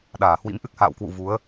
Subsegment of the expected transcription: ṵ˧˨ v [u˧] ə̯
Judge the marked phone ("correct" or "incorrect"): incorrect